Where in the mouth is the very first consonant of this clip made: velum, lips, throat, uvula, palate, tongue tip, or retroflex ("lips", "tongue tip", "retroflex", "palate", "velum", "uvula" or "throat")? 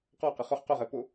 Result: uvula